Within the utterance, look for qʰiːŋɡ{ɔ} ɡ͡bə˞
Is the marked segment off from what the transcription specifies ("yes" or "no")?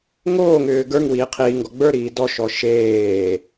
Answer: no